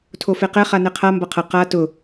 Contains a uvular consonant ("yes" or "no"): yes